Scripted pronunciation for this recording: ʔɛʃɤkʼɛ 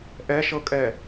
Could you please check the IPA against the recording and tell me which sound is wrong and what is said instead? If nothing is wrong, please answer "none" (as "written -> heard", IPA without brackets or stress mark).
none